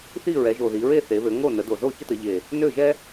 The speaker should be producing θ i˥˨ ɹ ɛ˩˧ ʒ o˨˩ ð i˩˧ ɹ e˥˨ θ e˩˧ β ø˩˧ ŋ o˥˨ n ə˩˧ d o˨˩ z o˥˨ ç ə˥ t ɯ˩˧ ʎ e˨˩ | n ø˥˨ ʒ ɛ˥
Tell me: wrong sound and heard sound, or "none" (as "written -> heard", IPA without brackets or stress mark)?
ɯ˩˧ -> ə˩˧